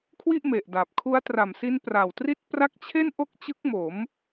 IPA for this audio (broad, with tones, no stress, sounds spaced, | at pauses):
kʰ w i˥˩ ʔ m e˨˩ ʔ d a˨˩ p̚ kʰ u˦˥ a̯ t r a˨˩ m s i˦˥ n p r a˨˩ w t r i˥˩ t̚ p r a˥˩ k̚ t͡ɕʰ e˥˩ n ʔ o˥˩ k̚ t͡ɕ ɯ˦˥ k̚ m o˩˦ m